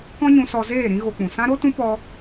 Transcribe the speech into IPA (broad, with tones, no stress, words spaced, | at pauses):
kɔ̃˦ɲũ˧sɔ˧ zeː˦˨ ɾĩ˦ɣo˧ k͡pũ˨sã˦ɾo˦tũ˦ pɔ˦